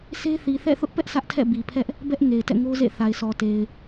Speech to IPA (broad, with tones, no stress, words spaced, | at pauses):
se˦θi˨θɛ̰˦˨ θʊ˦ʔpɛ˦ʔ sʰä˦ʔtʰɛ̰˦˨ bi˨pʰɛ˦ʔ | bɛ˦ʔ ŋe˨ɪ̯tɛ̰˦˨ŋo˦zḛ˦˨ θa˨ɪ̯sɔ˨te˨ɪ̯